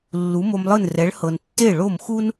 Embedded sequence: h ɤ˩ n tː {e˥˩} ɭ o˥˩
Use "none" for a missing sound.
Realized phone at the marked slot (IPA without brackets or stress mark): e˥˩